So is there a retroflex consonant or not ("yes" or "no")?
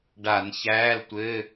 yes